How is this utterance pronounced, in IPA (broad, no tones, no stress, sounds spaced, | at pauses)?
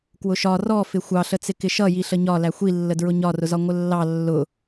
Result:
k w ʊ ʃ ɒ r ɔ f ɪ xʷ ɑ ɬ ə t͡s ɪ k ɪ ʃ ʌ j i ɬ ə ɲ ɒ l æ xʷ i lː ə d ɹ ʊ ɲ ɒ r ʊ z ɒ ŋʷ ə lː ɑ lː ʊ